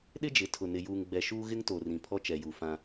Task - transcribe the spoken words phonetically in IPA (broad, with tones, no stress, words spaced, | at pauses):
ɗɪ˦d͡ʒɪ˨tʰʊ˨ nɪ˨juː˨ŋɡ͡bɛ˨ ʃuː˦ɣɪ˦ŋto˨ rĩ˨pʰɔ˦t͡ʃɛ˨ ju˨fã˦